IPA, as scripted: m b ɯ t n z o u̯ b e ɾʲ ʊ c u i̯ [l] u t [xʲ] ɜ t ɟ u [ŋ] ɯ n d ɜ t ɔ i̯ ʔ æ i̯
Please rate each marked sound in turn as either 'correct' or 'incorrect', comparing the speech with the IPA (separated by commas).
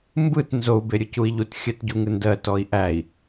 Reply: incorrect, correct, correct